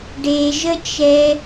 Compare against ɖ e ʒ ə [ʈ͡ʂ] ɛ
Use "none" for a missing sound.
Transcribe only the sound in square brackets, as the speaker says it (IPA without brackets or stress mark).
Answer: t͡ʃ